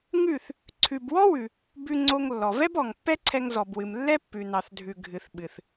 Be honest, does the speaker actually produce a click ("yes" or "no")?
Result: yes